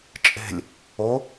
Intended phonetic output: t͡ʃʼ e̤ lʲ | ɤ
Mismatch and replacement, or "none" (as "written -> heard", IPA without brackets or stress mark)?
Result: ɤ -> o